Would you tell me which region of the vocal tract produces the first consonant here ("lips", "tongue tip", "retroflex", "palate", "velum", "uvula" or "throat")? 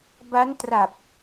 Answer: lips